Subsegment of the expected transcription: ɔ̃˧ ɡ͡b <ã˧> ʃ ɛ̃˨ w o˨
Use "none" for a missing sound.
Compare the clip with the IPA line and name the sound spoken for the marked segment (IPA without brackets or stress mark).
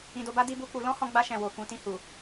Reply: a˧